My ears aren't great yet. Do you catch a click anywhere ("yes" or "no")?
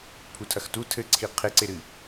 yes